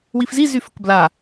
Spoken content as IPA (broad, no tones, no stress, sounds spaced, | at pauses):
w i f z i z y f ə k b l a